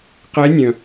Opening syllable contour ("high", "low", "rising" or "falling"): rising